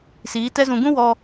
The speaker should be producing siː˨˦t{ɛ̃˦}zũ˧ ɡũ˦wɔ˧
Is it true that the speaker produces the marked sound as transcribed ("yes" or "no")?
no